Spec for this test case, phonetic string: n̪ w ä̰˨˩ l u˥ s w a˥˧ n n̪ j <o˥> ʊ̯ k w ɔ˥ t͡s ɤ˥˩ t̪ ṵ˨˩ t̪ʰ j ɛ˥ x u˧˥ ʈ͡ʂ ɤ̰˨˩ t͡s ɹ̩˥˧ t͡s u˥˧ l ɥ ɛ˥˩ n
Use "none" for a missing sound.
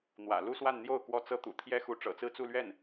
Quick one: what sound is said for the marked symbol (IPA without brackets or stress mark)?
o˥˩